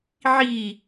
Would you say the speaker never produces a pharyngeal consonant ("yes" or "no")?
no